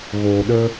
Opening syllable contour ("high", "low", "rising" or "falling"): low